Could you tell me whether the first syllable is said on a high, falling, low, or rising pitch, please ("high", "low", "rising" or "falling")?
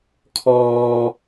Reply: high